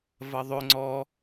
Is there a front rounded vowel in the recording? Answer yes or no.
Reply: yes